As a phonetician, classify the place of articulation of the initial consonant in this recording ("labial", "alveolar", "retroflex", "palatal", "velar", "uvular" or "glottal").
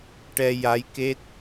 retroflex